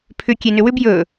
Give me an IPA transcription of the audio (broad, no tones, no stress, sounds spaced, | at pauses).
pʰ ʏ kʲ e n ʏ w ʏ b j ɵ